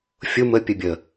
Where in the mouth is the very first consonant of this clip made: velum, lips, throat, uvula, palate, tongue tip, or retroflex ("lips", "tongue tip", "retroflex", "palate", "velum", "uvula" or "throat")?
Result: lips